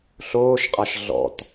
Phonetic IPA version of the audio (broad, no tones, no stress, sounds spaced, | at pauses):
ɬ oː ʃ qʼ a ʃ ɮ ɔ̰ t